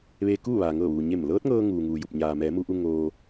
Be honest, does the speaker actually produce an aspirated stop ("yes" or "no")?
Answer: no